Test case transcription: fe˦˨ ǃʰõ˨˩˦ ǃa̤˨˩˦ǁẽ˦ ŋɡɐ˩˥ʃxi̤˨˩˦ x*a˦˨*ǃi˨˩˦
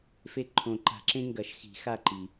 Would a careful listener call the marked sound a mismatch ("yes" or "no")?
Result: no